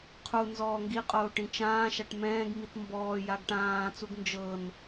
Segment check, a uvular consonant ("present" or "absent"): present